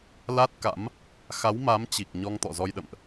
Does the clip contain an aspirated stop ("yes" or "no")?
no